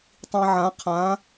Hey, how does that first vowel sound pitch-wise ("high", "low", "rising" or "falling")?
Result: low